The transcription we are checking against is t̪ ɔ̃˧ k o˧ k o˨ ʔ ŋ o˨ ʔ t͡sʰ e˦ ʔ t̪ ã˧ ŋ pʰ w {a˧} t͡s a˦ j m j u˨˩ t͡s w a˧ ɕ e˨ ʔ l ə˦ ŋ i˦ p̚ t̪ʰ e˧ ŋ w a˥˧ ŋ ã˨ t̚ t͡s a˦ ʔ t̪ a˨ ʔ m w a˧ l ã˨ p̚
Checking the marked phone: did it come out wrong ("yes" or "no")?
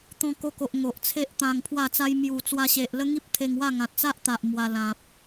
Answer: yes